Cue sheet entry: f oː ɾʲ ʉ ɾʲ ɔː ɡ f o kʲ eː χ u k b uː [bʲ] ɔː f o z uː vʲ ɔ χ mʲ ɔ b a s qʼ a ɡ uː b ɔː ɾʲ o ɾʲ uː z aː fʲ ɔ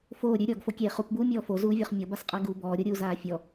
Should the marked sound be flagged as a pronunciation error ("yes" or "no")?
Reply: yes